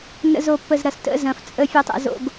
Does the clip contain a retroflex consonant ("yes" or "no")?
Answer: no